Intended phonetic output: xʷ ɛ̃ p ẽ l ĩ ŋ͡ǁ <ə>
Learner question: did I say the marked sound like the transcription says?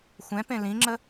yes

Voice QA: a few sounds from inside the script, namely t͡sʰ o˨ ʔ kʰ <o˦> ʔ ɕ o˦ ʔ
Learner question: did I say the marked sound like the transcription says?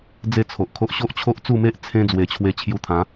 yes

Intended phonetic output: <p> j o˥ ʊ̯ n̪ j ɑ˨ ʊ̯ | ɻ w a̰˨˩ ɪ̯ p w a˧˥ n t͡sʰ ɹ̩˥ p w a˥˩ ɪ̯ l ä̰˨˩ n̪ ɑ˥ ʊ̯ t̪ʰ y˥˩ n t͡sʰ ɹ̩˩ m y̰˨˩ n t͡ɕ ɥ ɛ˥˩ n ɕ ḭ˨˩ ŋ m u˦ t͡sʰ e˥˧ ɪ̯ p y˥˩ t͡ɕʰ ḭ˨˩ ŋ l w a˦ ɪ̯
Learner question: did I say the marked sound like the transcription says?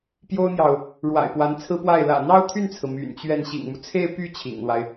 yes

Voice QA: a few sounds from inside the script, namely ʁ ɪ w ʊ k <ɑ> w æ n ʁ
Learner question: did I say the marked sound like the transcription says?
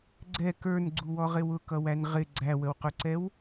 no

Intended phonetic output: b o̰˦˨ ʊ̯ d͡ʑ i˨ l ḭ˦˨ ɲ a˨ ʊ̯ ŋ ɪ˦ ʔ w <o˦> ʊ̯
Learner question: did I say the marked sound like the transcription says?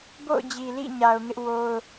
yes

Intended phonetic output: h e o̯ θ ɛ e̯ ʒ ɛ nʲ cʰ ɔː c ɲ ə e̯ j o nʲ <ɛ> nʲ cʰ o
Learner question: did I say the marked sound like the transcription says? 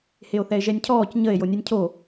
yes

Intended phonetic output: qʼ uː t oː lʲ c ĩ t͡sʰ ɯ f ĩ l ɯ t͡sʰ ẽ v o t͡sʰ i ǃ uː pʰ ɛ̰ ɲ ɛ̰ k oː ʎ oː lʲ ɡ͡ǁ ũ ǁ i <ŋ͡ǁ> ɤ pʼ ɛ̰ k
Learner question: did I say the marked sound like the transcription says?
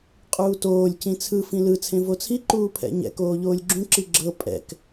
no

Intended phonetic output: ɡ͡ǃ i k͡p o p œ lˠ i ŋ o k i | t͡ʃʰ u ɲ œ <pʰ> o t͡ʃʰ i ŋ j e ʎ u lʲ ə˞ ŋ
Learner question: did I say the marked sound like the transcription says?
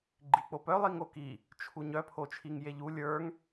yes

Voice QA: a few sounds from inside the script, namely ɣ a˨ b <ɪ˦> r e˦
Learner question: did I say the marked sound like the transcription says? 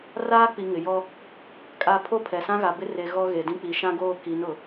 yes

